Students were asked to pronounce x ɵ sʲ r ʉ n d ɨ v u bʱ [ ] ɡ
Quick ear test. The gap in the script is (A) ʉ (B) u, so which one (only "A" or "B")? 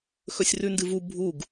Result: B